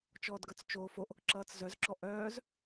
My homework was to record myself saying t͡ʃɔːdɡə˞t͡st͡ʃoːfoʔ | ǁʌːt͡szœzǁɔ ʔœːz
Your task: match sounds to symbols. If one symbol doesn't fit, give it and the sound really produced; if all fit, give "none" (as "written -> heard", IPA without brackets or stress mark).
none